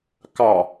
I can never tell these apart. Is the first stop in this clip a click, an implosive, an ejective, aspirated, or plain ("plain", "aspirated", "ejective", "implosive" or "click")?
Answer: plain